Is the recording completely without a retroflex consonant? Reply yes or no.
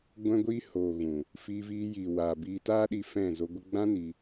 yes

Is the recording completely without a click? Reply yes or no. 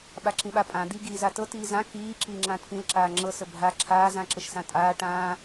no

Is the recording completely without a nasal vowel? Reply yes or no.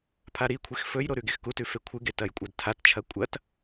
yes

